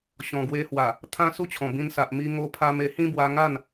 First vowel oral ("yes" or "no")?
no